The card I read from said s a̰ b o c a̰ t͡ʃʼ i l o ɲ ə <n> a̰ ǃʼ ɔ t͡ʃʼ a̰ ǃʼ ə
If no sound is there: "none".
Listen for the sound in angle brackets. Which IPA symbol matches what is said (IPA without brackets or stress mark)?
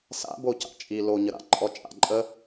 ɾ